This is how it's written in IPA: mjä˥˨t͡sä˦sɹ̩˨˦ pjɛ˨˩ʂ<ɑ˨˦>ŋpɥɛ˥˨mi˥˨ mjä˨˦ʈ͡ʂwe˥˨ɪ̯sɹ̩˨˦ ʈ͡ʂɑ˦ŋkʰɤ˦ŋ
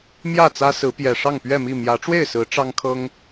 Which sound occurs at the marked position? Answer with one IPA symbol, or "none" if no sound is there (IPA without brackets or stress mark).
ɑ˥˨